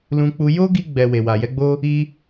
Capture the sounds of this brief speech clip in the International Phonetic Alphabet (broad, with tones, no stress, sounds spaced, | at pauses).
l ũ˧ k͡p u˧ j o˦ ɡ i˧ ɡ͡b ɛ˧ w e˨ w a˨ j ɛ˨˦ ɡ͡b o˦ | i˦